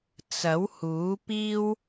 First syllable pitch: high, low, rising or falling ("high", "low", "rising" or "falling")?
rising